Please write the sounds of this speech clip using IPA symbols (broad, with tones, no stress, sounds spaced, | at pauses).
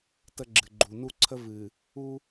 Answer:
t ə˦ ɡ͡ǁ ɨ˨ ɡ͡ǃ u˨ n u˦ ǀʰ ə˦ v ɨ˨ | u˦